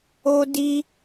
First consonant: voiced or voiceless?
voiced